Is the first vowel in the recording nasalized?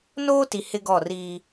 no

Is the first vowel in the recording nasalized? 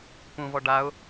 yes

